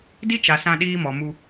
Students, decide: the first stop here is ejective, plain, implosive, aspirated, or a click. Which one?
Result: plain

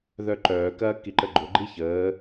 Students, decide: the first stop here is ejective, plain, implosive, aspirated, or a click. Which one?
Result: click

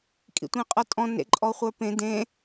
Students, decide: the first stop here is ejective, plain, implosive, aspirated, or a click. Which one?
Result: ejective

